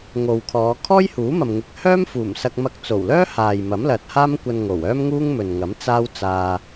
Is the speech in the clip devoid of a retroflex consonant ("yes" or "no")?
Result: yes